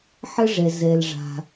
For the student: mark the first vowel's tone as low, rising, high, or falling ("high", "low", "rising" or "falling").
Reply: high